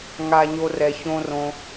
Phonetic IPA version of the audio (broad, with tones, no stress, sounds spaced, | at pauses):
ŋ a˨ ɲ o˨ r ɛ˩ ç õ˨ r õ˩